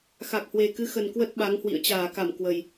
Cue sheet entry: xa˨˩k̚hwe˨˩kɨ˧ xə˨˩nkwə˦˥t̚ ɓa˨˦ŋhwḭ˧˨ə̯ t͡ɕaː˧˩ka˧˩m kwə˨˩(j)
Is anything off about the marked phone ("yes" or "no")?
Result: no